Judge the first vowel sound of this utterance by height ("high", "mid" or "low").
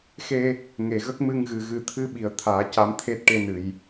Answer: mid